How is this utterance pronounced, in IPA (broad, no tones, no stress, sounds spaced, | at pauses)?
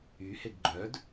y h e ɡ ɡ͡ǃ œ d